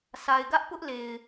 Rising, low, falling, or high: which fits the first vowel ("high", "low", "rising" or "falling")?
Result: low